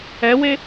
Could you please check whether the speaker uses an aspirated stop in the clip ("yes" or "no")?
no